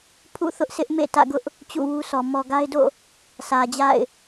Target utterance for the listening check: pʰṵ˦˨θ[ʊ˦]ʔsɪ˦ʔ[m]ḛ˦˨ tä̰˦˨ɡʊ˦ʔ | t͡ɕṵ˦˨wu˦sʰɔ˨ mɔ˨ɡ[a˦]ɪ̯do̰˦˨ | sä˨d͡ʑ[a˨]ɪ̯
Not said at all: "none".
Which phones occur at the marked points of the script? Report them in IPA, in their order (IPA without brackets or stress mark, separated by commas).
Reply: ʊ˦, m, a˦, a̰˦˨